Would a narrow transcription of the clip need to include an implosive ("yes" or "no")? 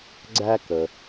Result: no